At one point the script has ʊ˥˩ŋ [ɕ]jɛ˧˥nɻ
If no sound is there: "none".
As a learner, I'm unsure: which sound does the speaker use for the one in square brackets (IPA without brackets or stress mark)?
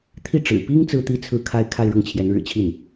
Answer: t͡ɕʰ